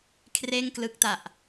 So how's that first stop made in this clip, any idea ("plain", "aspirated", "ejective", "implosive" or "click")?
aspirated